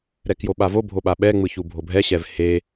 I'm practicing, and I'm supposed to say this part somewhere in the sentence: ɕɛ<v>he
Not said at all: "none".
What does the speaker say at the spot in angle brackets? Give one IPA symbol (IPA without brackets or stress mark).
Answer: v